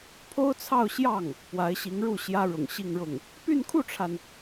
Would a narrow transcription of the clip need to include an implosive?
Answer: no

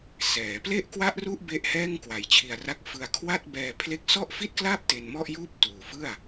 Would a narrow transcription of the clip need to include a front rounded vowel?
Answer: no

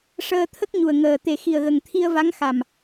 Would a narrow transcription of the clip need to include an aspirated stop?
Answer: yes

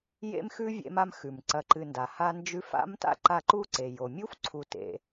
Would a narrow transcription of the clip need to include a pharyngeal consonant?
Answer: no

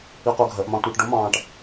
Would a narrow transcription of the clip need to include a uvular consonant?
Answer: yes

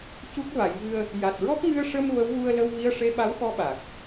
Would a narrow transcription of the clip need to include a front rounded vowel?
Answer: no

